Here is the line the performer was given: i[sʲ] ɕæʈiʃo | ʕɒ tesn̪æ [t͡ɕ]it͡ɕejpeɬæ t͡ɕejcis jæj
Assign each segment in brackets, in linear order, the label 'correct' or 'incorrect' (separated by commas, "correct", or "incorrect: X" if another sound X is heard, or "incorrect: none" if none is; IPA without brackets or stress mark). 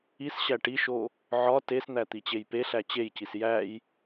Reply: incorrect: s, incorrect: t̪